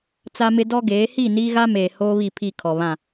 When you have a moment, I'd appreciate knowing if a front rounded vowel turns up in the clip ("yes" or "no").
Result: no